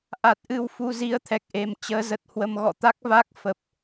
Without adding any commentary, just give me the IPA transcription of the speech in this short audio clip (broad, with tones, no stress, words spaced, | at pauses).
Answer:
ʔa˨˩t̚ʔɨ˧w fu˧zi˧ə̯t̪ʰɛ˨˩k̚ʔe˨˩m t͡ɕəː˨˦zə˨˩t̚hwə˧m ɣɔ̰˧˨t̪a˦˥k̚va˦˥k̚fə˨˩p̚